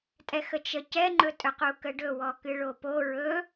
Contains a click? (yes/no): yes